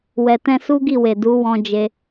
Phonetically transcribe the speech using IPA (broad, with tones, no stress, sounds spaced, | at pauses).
w ɛ˨ t ɛ̃˧ s u˦ ɡ i˦˨ w e˨ d u˨˦ w ɔ̃˧ d͡ʒ e˧